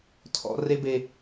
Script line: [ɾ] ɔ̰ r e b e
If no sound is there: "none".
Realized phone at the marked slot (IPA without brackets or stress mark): tʰ